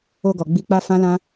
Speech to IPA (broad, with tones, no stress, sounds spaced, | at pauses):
o˧ ɡ ɔ˨ ɡ͡b i˧ k͡p a˦ f ã˦ l ã˦